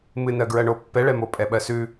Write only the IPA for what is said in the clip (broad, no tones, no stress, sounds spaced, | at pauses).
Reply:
m ɨ n ɜ ɡ ɹ ɜ ɳ o pː ɛ ɭ ɛ m o pʼ ɛ ɓ ɜ s ʉ